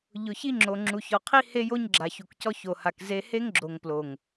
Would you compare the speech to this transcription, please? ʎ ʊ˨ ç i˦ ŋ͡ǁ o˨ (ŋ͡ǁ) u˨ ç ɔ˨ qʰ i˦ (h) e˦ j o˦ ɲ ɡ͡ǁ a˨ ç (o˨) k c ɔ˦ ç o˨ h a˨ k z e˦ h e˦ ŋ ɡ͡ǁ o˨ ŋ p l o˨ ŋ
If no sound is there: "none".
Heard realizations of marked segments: ŋ͡ǁ, h, u˨

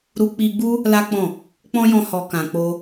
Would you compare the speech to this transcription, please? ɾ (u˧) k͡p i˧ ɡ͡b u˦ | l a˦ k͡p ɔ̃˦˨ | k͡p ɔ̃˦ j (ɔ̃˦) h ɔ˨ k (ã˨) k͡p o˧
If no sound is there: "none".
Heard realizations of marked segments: u˧, ɔ̃˧, ã˨

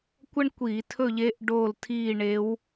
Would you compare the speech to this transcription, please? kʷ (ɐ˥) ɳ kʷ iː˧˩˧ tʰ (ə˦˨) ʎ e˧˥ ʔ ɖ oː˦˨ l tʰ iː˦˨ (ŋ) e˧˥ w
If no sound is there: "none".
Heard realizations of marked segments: ɐ˥, ɵ˦˨, ɳ

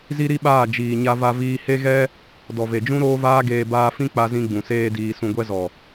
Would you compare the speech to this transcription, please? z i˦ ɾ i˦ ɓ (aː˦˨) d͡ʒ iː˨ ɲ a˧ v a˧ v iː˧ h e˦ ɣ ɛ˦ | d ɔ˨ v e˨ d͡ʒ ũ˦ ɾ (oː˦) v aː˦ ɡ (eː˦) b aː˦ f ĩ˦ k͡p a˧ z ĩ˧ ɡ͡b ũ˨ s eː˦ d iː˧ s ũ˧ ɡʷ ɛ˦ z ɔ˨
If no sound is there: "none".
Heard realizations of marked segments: aː˦˨, oː˦, eː˧

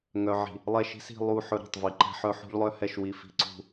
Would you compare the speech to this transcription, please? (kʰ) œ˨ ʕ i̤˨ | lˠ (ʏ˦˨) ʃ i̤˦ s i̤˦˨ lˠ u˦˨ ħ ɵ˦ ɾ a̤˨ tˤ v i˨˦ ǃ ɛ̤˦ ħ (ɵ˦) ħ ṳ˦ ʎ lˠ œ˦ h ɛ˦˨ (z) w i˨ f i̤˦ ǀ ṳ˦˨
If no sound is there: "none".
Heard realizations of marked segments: ŋ, ɛ˦˨, œ˦, ʃ

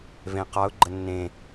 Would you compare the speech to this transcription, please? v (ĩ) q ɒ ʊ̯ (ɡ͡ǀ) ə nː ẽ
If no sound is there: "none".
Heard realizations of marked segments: ẽ, ɡ͡ǃ

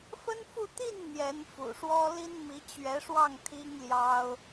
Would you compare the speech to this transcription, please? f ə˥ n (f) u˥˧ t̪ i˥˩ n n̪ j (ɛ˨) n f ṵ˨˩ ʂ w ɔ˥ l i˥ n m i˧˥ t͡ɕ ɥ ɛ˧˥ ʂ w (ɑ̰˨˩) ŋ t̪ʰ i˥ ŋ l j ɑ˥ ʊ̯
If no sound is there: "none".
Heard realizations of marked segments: f, ɛ˧˥, ɑ˥˩

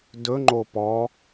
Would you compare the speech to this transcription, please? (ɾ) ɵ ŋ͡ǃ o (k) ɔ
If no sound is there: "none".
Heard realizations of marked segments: d, p

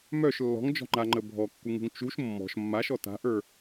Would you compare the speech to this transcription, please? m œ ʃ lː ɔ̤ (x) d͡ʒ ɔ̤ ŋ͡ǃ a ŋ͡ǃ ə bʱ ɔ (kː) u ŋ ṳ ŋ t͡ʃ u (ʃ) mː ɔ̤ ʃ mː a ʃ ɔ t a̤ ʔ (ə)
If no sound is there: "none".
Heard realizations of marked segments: ŋ, kː, ʃ, ə˞

